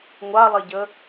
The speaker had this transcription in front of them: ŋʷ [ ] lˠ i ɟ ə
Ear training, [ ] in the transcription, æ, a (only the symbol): a